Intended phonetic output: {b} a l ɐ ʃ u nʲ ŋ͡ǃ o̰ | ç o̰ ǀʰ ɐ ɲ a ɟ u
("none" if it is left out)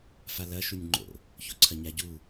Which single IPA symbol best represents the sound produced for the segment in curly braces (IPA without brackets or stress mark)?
f